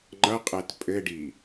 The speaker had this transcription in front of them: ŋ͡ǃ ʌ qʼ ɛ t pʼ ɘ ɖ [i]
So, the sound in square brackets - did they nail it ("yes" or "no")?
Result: yes